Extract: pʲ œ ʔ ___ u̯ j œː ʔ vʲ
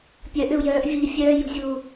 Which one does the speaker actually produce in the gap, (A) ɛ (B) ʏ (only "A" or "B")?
B